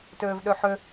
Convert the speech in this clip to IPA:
t øː v ɗ ø ħ ø

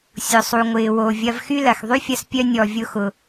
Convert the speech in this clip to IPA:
sʲ ʊ˩ sˤ u˩ ŋʷ ɪː˩ w o˩ vʲ ɐ˧ v x y˥ l ɐ˩ x ðˤ y˥ fʲ ɐ˧ s pʲ œ˧ nʲ ɔ˩ vʲ ʊ˧ x ʊ˩

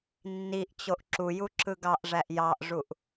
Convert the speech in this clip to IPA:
nː i ʔ t͡ɕ o ʔ ǁ u j u ǁ ɯ ɡ ɑ ʔ ʐ æ ʔ j ɑ ʔ ʐ u ʔ

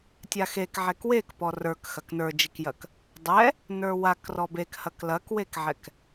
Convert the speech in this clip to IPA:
tʲ a x e k ʕ ɛ k w e k p ɔ r ə˞ k x ɐ k n ə˞ d͡ʒ i k j ɐ k | dˤ ɛ | n ə˞ w a k r ɔ b e k h ɐ k l ɐ k w e k ʕ ɛ k

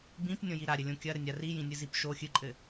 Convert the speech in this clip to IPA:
b ĩ p nʲ õ j i ɾ a ɾʲ ɘ lʲ õ kʲ ɐ ɾ ɘ nʲ a r i j ĩ nʲ ɨ z i p ʃ o xʲ ɨ ǃʼ ɘ

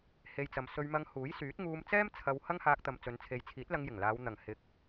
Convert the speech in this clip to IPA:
h e˧ j t͡s ɐ˨˧ m s ɵ˧ ɥ m ɐ˧ ŋ h uː˨˥ j s yː˨˥ t̚ ŋ uː˧ m t͡s ɛː˥ m t͡sʰ ɐ˧ w h ɐ˥ ŋ h aː˧ k̚ t̪ ɐ˨ m t͡s ɵ˨˧ n t͡sʰ e˨˧ j t͡sʰ iː˨˥ t̚ l ɐ˧ ŋ j ɪ˨˩ ŋ l aː˨˧ w n̪ ɐ˨˩ ŋ h ɪ˨˥ k̚

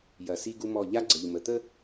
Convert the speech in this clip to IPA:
j ɐ˨ s i˦ ɡ u˦ m ɔ˦˨ ʎ a˦ ɡ͡ǀ ə˨ ʎ m ə˨ t̪ ə˦

